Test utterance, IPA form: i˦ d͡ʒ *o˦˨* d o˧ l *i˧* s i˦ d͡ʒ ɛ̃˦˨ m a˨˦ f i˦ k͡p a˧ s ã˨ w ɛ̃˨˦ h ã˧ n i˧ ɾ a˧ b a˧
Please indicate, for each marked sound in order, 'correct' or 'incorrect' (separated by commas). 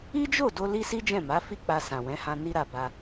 correct, incorrect